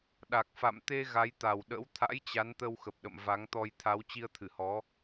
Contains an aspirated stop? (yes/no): yes